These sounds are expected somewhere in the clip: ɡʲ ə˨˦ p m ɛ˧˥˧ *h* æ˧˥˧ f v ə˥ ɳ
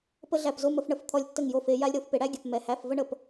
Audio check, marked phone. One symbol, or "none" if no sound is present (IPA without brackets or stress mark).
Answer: h